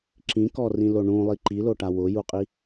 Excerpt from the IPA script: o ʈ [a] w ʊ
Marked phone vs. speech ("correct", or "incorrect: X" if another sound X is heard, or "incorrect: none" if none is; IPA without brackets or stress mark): correct